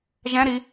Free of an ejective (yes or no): yes